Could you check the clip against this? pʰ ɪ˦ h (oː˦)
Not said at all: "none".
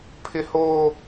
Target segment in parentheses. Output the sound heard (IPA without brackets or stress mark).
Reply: oː˦